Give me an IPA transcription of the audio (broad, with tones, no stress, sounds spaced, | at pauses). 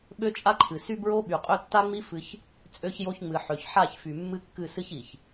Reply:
ɓ ø˦ t͡ʃʼ a˦ ǃʰ ɨ˨ s y˦ b ɹ o˦ ɓ y˨ qʼ ø˦ tː a˦ ŋ͡m i˦ f ɨ˦ ç | t͡sʼ ø˦ ç j o˦ ç ŋ͡m ɨ˨ ħ ø˨ ç ħ a˦˨ ç f y˨ mː ɨ˦ kː ɨ˦˨ s ɨ˦ ç i˨ ç